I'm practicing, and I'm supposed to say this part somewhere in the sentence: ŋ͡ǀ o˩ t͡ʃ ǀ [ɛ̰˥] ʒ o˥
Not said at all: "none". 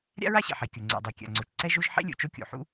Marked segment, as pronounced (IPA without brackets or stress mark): ɛ˥